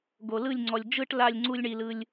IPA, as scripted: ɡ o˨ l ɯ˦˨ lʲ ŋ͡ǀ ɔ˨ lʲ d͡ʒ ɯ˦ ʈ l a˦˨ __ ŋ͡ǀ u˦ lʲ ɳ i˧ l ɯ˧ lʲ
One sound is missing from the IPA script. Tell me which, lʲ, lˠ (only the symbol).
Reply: lʲ